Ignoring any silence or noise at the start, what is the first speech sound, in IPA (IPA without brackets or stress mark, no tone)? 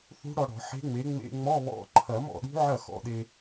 θ